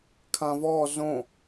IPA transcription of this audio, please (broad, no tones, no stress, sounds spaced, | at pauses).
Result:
kʰ ã v ɔ z õ